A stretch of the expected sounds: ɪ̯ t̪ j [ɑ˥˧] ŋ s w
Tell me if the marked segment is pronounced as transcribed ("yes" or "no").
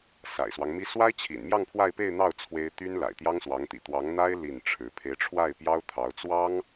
no